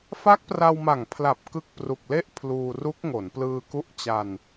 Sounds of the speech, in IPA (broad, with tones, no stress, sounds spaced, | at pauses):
f a˦˥ k̚ p r a˧ w m a˨˩ ŋ pʰ l a˨˩ p̚ k ɯ˦˥ k̚ p r u˨˩ k̚ l e˥˩ ʔ pʰ l uː˧ r u˦˥ k̚ ŋ o˩˦ n p l ɯː˧ k u˦˥ ʔ t͡ɕ a˧ n